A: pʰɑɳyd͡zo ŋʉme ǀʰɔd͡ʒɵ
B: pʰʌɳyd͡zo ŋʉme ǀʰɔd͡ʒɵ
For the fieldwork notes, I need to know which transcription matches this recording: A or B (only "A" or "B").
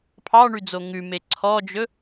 A